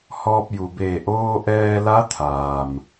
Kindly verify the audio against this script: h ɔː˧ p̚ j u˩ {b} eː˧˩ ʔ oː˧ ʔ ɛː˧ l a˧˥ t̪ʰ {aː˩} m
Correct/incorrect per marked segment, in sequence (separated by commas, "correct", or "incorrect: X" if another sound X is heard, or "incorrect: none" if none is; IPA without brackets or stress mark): correct, correct